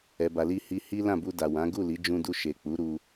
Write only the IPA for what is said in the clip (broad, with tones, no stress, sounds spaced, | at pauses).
ɛ˨ b a˨ l i˧ h i˧ h i˦ l ã˦˨ b u˧ d a˨ w ã˨˦ ɡ u˦˨ l i˨˦ d͡ʒ ũ˧ d u˧ ʃ e˨ k͡p u˨˦ ɾ u˧